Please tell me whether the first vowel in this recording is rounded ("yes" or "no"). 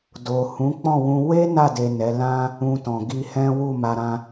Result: yes